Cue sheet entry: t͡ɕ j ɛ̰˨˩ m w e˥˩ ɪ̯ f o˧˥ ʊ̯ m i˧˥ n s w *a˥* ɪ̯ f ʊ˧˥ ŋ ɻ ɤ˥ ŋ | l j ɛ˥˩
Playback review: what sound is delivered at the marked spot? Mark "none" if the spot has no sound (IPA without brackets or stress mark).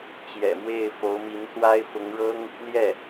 a˥